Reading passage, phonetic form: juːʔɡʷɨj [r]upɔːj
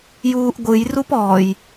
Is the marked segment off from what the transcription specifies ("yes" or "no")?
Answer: no